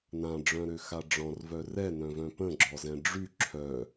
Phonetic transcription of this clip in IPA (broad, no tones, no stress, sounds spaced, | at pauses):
n ã ɖ͡ʐ œ̃ ɾ ø x a ɖ͡ʐ ɔ̃ r v œ r ɛ n œ̃ v œ̃ p ə̃ ɡ͡ǁ ɔ z ɛ̃ ɖ͡ʐ y ǁʰ œ